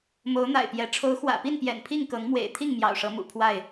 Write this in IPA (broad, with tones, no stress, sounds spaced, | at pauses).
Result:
m o˨˦ ʊ̯ n̪ a̰˨˩ ɪ̯ p j ɛ˨˦ ʈ͡ʂʰ o˨˦ ʊ̯ x w ä̰˨˩ p i˥˨ n p j ɛ̰˨˩ n pʰ i˥˨ ŋ k ɤ˨˦ ŋ m w ḛ˨˩ ɪ̯ t̪ʰ i˥˨ ŋ m j ɑ̰˨˩ ʊ̯ ʂ ɤ˨˦ m ṵ˨˩ pʰ w a˥˨ ɪ̯